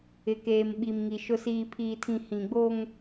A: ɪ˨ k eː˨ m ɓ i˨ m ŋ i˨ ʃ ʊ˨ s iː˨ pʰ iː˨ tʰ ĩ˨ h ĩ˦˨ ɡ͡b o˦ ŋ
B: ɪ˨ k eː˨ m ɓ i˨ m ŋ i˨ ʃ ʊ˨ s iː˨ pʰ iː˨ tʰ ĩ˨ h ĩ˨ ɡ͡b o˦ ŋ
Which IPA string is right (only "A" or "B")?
B